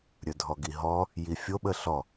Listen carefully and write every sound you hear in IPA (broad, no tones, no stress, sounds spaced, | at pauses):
ɾʲ ɵ dʱ ɔ ɡ i ɦ ɔ | j i fʲ o ɓ ə ɬ ɔ